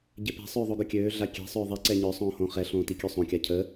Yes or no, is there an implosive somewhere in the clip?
no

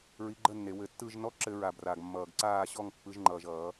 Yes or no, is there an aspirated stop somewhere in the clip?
no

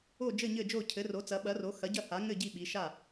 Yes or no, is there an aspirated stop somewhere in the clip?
yes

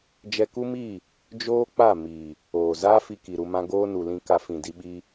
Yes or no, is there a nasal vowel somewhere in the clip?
yes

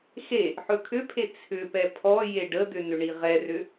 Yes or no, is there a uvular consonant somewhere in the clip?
yes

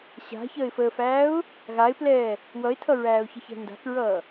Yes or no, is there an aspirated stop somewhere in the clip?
yes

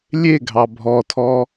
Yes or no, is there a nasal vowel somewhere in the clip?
no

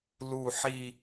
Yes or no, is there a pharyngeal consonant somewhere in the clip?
yes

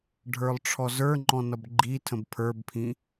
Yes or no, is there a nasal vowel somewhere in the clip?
yes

